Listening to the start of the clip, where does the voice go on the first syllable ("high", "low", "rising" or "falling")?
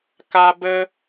high